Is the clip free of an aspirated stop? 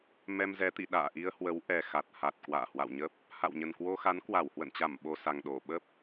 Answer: yes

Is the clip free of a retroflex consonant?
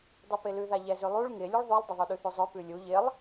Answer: no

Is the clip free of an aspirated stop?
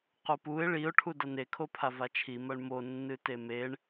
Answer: no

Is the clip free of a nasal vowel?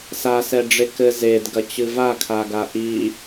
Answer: yes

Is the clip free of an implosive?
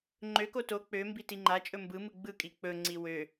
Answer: yes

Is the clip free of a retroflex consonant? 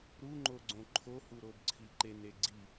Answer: yes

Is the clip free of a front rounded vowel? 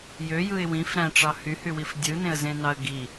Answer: no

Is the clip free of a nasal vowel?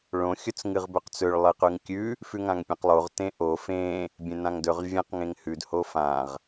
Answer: no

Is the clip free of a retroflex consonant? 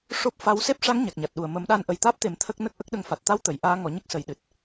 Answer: no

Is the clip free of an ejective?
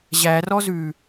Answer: yes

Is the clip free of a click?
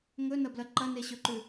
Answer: no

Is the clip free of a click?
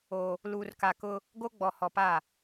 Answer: yes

